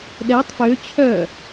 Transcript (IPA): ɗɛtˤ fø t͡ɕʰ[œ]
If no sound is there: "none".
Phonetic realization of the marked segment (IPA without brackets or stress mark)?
œ